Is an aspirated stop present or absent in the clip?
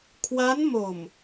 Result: present